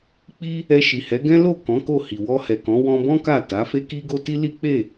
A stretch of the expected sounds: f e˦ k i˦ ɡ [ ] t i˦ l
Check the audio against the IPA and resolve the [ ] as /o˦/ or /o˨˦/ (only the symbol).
o˦